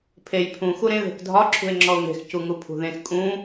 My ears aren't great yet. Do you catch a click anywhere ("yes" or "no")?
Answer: yes